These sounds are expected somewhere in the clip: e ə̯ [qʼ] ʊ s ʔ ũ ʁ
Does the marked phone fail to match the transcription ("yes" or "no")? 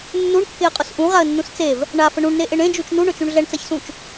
no